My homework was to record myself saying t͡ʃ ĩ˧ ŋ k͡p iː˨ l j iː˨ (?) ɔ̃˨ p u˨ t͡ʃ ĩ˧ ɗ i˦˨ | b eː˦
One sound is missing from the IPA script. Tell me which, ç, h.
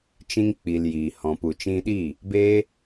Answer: h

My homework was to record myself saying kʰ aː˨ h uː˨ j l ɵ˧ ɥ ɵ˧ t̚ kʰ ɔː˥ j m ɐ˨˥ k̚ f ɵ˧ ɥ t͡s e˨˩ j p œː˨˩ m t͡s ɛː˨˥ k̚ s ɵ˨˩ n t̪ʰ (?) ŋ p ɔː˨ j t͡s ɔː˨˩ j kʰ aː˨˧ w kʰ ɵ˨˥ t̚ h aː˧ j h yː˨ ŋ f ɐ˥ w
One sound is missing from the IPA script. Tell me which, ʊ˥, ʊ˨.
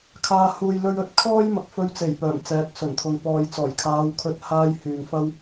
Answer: ʊ˨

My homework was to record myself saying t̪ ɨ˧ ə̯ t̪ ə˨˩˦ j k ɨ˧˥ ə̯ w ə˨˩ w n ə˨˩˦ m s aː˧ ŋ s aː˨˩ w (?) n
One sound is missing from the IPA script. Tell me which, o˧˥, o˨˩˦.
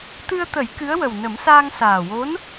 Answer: o˧˥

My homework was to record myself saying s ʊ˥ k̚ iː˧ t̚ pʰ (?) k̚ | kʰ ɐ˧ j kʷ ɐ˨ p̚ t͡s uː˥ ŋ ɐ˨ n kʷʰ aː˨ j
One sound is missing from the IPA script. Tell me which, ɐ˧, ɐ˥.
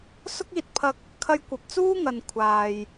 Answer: ɐ˧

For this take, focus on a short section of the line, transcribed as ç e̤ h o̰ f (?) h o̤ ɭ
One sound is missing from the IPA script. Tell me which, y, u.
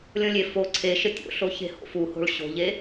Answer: u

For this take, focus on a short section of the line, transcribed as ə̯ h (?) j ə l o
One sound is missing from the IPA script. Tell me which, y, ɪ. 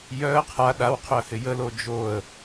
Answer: ɪ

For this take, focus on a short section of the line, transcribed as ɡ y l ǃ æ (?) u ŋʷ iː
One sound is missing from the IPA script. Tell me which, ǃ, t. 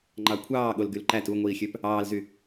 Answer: t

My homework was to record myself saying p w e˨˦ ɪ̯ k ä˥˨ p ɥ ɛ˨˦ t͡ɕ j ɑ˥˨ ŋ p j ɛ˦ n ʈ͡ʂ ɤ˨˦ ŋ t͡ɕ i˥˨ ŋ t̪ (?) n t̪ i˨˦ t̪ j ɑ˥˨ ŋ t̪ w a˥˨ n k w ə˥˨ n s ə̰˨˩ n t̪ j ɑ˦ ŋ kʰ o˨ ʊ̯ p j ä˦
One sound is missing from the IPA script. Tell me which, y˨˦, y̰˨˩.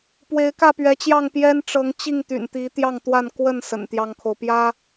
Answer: y̰˨˩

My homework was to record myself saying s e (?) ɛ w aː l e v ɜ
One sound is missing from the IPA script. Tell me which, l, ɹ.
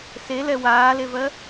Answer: l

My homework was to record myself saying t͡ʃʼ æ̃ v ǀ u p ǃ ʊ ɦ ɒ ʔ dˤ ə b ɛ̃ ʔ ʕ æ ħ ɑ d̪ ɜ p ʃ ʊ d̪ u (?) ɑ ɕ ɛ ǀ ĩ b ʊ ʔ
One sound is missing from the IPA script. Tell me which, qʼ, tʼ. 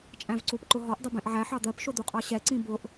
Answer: qʼ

